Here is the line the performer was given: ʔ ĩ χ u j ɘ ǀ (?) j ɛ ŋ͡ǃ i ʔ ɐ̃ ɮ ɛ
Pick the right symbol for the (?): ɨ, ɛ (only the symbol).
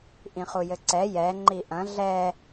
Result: ɛ